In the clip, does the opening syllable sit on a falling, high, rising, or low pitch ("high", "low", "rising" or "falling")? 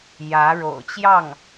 rising